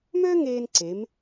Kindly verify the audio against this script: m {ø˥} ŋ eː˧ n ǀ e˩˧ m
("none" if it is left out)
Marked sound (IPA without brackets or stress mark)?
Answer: ø˥